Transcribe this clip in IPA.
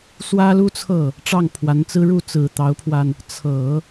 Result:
s w ä˥ l u˥ t͡sʰ ɤ˥˩ | ʈ͡ʂ ɑ˥˩ ŋ pʰ w a˧˥ n t͡s ɹ̩˥ ɻ u˥˩ t͡s ɹ̩˨˩ t̪ ɑ˧˥ ʊ̯ pʰ w a˧ n | t͡sʰ ɤ˨˩˦

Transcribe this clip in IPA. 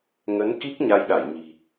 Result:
ŋ ə˨˦ n k i˦˥ k̚ ɲ a˧ j ɗ a˧˩ j ɲ i̤˨˩

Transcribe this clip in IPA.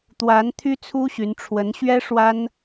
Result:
t̪ w a˧˥ n t̪ʰ y˥ t͡sʰ u˥ ɕ y˧˥ n ʈ͡ʂʰ w ə˧˥ n ɕ ɥ ɛ˥ ʂ w a˥ n

